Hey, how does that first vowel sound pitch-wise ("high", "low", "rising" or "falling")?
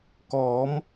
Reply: rising